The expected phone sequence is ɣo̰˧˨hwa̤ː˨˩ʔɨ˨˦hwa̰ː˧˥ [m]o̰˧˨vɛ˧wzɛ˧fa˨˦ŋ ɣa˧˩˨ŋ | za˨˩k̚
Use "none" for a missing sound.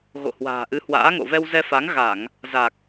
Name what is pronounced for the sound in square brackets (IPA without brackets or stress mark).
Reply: ŋ